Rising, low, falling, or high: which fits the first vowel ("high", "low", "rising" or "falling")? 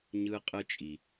high